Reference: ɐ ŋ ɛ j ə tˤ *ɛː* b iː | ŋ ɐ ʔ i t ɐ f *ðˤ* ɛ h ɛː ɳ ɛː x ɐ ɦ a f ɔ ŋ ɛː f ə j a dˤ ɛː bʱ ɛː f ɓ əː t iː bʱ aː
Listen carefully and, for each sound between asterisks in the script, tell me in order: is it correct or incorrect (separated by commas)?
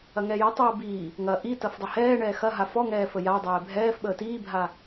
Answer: correct, incorrect